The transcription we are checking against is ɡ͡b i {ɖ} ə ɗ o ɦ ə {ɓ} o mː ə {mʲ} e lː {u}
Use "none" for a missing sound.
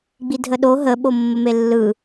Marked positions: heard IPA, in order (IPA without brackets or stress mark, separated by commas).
dʱ, ɓ, m, ɯ